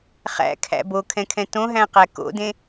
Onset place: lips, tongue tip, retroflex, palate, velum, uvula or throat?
uvula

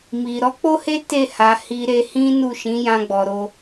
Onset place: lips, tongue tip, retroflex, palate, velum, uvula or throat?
lips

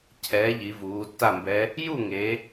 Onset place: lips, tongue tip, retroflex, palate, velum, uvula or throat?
palate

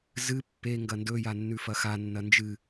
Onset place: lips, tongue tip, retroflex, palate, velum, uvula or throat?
tongue tip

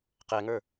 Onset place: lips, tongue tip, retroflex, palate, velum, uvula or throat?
uvula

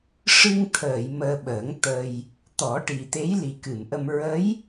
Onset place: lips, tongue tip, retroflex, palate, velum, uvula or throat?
retroflex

